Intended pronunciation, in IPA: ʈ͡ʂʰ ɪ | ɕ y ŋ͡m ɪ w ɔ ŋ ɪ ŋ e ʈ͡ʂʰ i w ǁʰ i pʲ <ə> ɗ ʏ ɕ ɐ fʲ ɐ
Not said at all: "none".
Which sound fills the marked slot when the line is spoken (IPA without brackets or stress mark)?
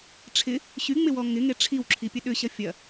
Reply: ə